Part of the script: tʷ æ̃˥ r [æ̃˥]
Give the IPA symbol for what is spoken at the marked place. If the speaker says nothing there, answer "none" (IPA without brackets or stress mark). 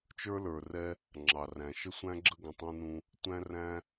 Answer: æ̃˥